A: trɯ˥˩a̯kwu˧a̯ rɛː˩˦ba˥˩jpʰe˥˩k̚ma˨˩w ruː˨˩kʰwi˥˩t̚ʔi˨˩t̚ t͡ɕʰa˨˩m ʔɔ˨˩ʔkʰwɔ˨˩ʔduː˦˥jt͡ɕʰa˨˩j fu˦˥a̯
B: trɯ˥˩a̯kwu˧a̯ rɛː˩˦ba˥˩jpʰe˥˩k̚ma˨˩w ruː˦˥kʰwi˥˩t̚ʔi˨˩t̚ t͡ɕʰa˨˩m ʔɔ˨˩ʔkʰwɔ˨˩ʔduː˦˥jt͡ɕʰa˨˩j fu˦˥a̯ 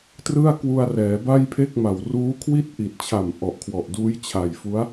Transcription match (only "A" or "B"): B